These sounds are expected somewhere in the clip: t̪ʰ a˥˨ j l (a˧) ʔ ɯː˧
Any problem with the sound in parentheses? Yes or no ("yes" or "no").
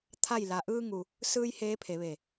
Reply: no